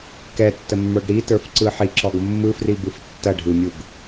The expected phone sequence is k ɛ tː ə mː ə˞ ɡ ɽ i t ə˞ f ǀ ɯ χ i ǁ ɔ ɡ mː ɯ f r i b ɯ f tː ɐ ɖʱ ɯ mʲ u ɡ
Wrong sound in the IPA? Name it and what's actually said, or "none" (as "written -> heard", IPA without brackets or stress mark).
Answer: χ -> ħ